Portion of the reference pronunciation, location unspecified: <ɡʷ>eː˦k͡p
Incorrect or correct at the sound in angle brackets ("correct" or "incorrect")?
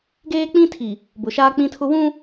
incorrect